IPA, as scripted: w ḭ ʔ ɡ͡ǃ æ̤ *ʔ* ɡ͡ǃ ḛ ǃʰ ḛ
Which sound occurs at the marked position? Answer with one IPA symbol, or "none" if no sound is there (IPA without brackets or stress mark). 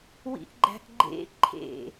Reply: ʔ